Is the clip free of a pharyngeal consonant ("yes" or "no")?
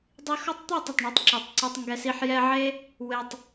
no